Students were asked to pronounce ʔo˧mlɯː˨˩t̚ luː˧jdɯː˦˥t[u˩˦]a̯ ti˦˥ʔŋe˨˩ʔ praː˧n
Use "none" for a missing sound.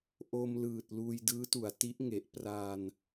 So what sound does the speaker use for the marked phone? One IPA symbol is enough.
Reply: u˩˦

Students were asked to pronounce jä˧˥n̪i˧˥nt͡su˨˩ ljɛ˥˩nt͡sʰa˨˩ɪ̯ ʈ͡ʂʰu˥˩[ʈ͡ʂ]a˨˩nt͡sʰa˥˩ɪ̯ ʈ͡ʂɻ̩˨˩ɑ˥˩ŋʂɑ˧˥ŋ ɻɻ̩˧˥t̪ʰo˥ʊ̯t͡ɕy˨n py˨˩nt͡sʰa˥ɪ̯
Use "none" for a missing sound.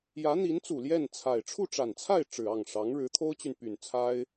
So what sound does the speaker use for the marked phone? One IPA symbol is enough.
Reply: ʈ͡ʂ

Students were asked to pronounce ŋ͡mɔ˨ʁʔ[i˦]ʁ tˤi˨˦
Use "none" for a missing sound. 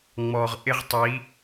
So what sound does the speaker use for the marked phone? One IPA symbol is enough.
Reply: ɪ˦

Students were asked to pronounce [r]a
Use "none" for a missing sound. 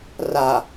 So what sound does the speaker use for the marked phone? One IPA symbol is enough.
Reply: r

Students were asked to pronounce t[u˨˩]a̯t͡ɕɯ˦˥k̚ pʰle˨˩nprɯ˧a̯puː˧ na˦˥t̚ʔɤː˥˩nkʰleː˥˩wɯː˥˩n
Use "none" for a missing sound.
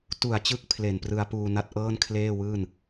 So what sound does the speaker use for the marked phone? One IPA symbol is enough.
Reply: u˨˩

